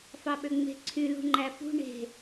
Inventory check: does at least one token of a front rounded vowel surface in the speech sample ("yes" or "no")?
yes